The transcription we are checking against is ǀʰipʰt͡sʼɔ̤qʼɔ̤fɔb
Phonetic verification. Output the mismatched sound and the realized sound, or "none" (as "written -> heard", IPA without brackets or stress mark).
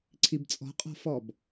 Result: pʰ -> b